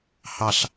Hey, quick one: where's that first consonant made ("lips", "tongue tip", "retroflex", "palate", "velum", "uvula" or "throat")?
throat